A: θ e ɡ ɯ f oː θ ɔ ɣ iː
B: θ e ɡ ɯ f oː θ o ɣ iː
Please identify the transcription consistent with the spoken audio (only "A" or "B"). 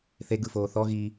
A